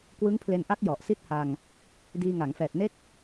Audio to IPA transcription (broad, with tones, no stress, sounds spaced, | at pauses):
k w ɯ˦˥ ŋ pʰ l e˧ n ʔ a˦˥ k̚ j ɔ˨˩ ʔ s i˥˩ t̚ h a˧ ŋ | d iː˧ ŋ a˩˦ ŋ f ɛː˨˩ t̚ n e˥˩ k̚